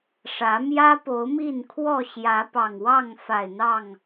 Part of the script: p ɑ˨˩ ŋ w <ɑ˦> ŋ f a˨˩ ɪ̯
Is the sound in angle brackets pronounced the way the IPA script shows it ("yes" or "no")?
no